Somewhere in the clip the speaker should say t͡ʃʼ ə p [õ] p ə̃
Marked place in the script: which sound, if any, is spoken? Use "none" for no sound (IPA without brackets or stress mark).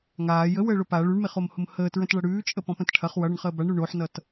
ɔ̃